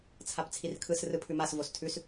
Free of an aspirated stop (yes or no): no